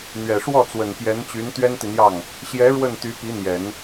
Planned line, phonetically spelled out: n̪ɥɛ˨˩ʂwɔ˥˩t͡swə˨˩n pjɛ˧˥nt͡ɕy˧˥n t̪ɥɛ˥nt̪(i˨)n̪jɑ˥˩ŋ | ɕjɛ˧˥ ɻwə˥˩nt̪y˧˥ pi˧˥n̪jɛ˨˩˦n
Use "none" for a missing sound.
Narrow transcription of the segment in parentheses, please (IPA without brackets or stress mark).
i˨